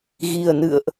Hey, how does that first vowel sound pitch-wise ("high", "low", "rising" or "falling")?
low